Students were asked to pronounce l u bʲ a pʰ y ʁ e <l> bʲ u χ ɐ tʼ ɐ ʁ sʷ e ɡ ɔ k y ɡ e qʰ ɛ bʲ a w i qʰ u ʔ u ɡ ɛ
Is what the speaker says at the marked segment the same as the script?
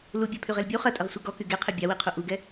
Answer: yes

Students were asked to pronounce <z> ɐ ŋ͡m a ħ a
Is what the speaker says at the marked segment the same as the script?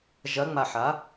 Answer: no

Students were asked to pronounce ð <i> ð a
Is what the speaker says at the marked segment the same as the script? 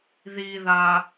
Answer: yes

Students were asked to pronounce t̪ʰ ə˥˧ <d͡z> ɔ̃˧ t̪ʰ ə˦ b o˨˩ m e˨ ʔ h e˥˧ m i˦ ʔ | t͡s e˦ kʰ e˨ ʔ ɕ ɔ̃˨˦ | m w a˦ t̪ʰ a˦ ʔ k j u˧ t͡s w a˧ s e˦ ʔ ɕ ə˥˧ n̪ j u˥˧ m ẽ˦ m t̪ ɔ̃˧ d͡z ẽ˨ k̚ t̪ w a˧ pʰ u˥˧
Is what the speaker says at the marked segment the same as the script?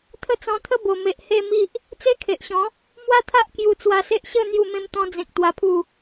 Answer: no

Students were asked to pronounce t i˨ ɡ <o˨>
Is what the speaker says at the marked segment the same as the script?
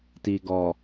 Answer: no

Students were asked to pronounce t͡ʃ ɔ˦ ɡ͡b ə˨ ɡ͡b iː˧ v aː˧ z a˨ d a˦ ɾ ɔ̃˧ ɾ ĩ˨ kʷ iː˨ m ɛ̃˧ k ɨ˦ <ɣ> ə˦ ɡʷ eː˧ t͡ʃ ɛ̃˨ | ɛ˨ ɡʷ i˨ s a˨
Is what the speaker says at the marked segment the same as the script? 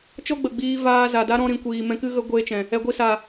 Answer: yes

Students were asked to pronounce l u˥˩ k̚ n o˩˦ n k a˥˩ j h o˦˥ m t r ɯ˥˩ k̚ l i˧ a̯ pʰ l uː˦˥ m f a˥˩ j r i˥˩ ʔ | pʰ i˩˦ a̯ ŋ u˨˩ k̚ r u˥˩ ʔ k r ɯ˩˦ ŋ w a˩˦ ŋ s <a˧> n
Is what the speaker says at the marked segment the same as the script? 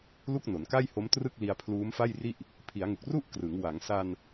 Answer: yes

